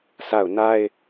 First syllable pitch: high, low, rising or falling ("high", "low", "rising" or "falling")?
falling